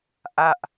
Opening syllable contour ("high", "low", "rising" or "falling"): falling